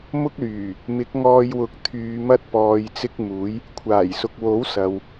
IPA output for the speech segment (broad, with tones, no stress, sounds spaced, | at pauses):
m ʊ˥ k̚ l yː˨˩ | m ɪ˨˥ k̚ ŋ ɔː˧ j w ʊ˨˥ k̚ t̪ʰ yː˨˧ m ɐ˥ t̚ p ɔː˨ j t͡s ɪ˧ k̚ m uː˨˥ j | kʷʰ aː˨˩ j s ʊ˨ k̚ w o˨˥ w s ɐ˨ w